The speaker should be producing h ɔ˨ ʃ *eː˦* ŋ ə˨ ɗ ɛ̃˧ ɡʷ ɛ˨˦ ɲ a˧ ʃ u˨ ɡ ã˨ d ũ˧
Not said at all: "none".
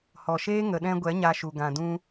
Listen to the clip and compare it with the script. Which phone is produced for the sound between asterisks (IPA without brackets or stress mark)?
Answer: eː˦